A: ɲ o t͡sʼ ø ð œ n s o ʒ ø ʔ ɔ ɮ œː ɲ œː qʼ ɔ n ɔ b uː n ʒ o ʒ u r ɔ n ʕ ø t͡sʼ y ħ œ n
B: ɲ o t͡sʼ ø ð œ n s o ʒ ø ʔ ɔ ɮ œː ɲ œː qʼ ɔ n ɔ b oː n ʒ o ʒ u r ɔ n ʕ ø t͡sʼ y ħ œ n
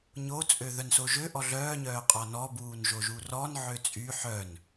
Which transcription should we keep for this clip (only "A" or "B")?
A